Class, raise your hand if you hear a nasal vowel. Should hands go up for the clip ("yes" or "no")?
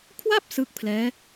no